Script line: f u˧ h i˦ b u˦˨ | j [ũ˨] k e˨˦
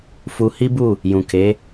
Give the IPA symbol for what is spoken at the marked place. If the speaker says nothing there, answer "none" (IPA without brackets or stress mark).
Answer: ũ˨